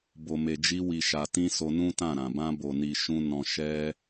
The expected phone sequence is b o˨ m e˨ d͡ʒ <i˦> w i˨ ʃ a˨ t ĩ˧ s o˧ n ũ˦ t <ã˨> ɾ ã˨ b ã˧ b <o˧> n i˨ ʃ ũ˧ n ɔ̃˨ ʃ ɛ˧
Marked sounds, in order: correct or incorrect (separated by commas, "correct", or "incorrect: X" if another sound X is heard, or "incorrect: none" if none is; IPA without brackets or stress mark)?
incorrect: i˧, incorrect: ã˦˨, incorrect: o˨